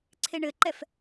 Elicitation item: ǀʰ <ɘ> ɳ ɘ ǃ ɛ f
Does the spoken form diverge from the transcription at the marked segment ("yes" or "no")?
yes